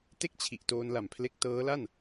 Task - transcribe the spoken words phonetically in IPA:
t e˥˩ k̚ t͡ɕʰ i˨˩ ʔ t oː˧ n l a˨˩ m pʰ l e˦˥ k̚ t ɤː˦˥ l a˥˩ n

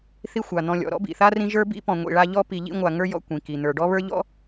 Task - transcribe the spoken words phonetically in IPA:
θ i˦ xʷ a˩ n̪ ɔ̃˨ lʲ ɔ̰˩ ɾ ɔ̰˥ b ḭ˩ θ a˥ r ĩ˦ ʒ ə˞˥ b ḭ˥ p ɔ̃˨ ŋʷ ḭ˨ ɭ a˦ ʎ ɔ˥ p i˨ ʎ ḭ˦ ŋʷ a˨ ŋ ə˞˥ j ɔ̰˥ kʷ ĩ˩ k i˩ n̪ ə˞˩ ɖ ɔ˥ β ə˞˥ ʎ ɔ̰˥

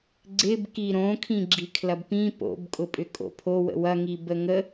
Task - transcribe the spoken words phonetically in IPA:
ɡ͡ǀ ɪ b k i ɾ õ kʰ ĩ ɡ͡ǁ i kʰ l ɐ b p ĩ p o̰ b kʼ ʊ pʼ ʏ kʼ o̰ pʰ o w ə̰ w ɐ ŋ i b ə ŋ ə

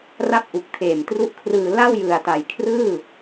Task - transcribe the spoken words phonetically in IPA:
r a˥˩ p̚ ʔ u˨˩ k̚ tʰ eː˨˩ m t r u˦˥ ʔ kʰ r ɯː˧ l a˥˩ w j ɯ˨˩ a̯ t a˨˩ j kʰ r ɯː˥˩

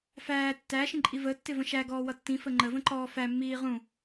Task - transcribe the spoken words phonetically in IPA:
f æː tː æ ʃ ĩ ǃʼ i v ə tː ɪ v ə̃ ʃ æ ɡ ɔː w ʌ tː ĩ f ə ŋ͡ǃ ə v ə̃ ǃ ɔː f æ mː iː ʁ ũ

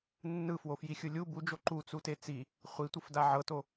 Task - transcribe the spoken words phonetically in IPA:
nː ɯ f w o f j i xʲ ɯ lʲ u b u d͡ʒ o ǃ u t͡s u t e t͡s i | χʷ i tʷ ɯ f d a ʕ ɤ t o

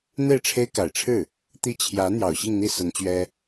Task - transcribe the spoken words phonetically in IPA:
n̪ e˥˩ ɪ̯ ʈ͡ʂʰ e˥ ɪ̯ k a˨˩ ɪ̯ ʈ͡ʂʰ ɻ̩˥˩ | t̪ i˥˩ t͡ɕʰ j ä˧˥ n̪ j ɑ˨˩ ʊ̯ ɕ i˥˧ ŋ n̪ i˥˩ s ə˧˥ n t͡ɕ ɥ ɛ˥

